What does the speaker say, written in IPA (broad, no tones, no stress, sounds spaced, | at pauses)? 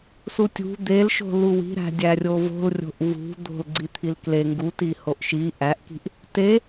s u tʲ ṳ d̪ e l ʃ o̤ l u w i̤ ɾ æ̤ dʲ æ rʲ o v o̤ l rʲ o̤ ʔ v ṳ d̪ o̤ l ɡ͡ǀ i t̪ʰ i l k l e ŋ ɡ u t i h o ʔ ʃ i ʔ æ ʔ k i̤ ʔ | t e